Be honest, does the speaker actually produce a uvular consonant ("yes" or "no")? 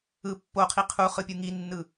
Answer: yes